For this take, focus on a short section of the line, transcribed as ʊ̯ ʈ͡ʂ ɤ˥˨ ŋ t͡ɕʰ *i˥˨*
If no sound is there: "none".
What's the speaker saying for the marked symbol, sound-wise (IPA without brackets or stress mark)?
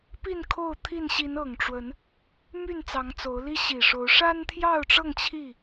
i˥˨